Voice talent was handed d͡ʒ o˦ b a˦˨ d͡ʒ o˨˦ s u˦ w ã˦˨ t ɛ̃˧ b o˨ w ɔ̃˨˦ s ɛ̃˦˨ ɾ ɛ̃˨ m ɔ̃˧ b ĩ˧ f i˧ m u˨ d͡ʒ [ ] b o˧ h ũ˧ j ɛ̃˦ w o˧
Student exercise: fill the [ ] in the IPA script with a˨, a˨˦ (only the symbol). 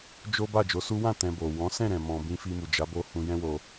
a˨˦